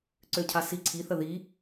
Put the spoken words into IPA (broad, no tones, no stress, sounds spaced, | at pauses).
ǀ ø cʰ a s i ǀʰ i θ ə ð i